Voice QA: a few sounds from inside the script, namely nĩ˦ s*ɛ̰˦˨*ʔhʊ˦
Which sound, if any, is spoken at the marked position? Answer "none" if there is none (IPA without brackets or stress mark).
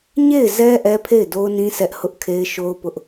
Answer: ɛ˦